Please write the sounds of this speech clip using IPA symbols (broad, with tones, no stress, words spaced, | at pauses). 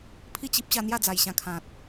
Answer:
pʰi˥˧t͡ɕi˦p̚ ɕa˧n̪ja˥˧d͡za˨˩j ɕã˧kʰã˨t̚